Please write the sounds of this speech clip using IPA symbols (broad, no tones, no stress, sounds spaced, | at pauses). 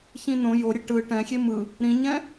ç ĩ n õ j o ɾʲ e ʈ ɯ ʈ ɛ̃ xʲ e m ɯ | ɾ ĩ ɲ ɛ̃